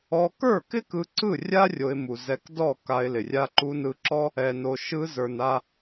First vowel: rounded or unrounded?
rounded